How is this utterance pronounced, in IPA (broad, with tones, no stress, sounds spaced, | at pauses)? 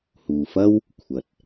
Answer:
h uː˨ f ɐ˥ w | kʷʰ ɐ˨ t̚